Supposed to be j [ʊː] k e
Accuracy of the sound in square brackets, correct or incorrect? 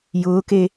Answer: correct